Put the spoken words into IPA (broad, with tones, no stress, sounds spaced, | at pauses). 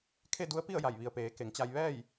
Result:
kʰ e˥˨ d u˧˥ ə̯ p i˥˨ ə̯ j a˧˩ j ʋ i˩ ə̯ p eː˩˧ k e˩˧ ŋ t͡ɕ a˧ j ʋ ɛː˥˨ j